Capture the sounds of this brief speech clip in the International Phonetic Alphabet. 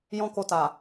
jɔ̃˦ko˧ta˨

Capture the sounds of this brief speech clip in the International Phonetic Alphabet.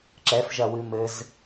ǁɛf ʒɐwɨmɘz

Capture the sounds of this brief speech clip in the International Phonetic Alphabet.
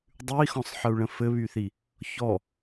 dˤʉi̯xɔ̃sˤħəu̯ɭə̃ fɘβyθi | çɔ

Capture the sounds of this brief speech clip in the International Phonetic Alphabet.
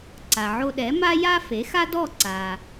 ǀa˩ʕo˧ɗɛ˩˥ ma˥ja˥fe˩˥ xa˥dɔ˥˩ ǀa˩

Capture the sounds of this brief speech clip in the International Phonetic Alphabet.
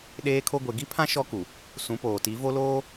ɗeː˦kʰo˦ ɡʷe˨ɡi˦pʰã˦ ʃɔ˦ku˨ | sũ˨˦poː˨ti˨˦ vo˦loː˦

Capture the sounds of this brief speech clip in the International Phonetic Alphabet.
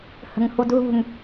hə̤ŋhudɦṳŋ

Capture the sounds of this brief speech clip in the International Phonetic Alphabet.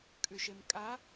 kʼʉʃemkʼa

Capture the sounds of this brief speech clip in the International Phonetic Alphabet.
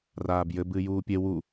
raːbjɘbɨː juːpʲe wu

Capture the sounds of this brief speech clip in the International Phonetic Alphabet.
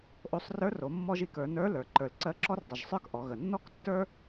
ʔo˧sˤrə˞˧˥r o˩˧mːɔ˥ʒi˩˧kə˞˩˧ nə˞˧˥lə˞˩ ǃə˞˩lǀɜ˧˥ǁɔ˥rdˤə˩ʒ sˤə˞˥kʔɔ˩˧ɣə˩ nːɔ˥ktːə˞˥

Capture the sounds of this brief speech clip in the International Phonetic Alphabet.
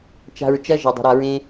t͡ʃa̤˧ɹt͡ʃɐ˦ ʒɐ˨dˤə̤˨ ɾa˧ɹẽ˦

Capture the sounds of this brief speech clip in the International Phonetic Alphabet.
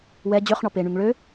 wɛ d͡ʑøχɳɔ peɳyŋ ɭø

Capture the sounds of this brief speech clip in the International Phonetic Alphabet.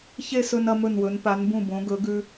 çe˥˧sɵ˧n ɐ˧mɵ˧˩nwɵ˩˧n pa˩˧nbũ˧˩bõ˩˧ɡɵ˩˧ ɡʉ˧

